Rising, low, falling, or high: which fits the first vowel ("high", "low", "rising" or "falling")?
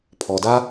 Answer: low